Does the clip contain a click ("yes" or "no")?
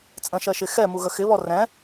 no